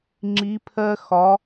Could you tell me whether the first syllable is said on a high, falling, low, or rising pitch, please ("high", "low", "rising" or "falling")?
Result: rising